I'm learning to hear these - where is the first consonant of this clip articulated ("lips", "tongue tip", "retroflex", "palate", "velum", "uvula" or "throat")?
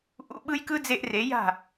throat